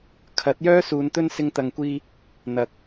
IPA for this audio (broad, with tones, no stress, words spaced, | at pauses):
kʰɐ˨˥t̚jœː˥ suː˨˧nt̪ɵ˥n sɪ˧ŋt̪ɐ˨ŋkʷiː˧ | n̪ɐ˨k̚